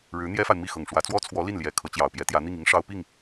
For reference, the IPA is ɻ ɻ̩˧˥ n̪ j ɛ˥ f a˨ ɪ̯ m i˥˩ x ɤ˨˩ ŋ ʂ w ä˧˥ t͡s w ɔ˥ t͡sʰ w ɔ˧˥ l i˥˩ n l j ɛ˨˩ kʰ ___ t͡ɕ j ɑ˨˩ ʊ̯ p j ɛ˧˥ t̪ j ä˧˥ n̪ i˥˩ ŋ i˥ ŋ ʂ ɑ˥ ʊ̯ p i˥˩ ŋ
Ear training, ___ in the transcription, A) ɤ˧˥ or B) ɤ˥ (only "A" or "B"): A